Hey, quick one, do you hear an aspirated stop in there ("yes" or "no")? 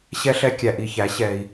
no